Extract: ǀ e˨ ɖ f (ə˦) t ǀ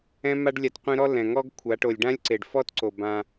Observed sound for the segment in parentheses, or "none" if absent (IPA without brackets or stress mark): ɔ˦